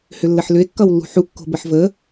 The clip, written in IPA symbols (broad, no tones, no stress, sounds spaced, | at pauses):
h ʏ lː ə ħ l ʏ e̯ kː ʌ w lː ṳ ħ u kː o̤ b ə ħ v ə